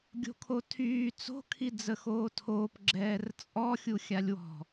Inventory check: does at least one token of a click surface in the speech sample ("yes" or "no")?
yes